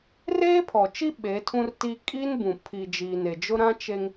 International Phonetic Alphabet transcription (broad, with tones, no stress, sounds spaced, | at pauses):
r eː˦ pʰ ɔ˨ t͡ʃ i˦ ɓ e˨˦ tʰ ũ˦ r t i˦ kʼ i˦ n b ũ˨ pʰ i˨ d͡ʒ iː˨ n e˨ d͡ʒ ʊ˦ ɾ ã˦ t͡ʃ e˦ ŋ